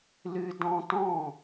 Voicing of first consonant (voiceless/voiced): voiced